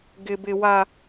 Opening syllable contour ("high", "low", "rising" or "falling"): low